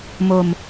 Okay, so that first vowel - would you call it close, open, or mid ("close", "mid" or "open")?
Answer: mid